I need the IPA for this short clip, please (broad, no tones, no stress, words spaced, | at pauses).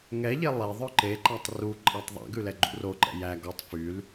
ŋɛʎe lˠe ðˤœǃeǃætˤ ruǃʼɑtˤ ðˤæ̰ɡʉ lɛɡ͡ǃṵroǃɛ̰ jæ ɡɔtˤ fyl